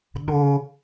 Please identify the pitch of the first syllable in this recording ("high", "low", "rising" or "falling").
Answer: high